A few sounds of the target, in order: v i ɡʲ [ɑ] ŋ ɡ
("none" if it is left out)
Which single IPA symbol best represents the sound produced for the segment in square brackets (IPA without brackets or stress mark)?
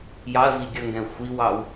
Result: ʌ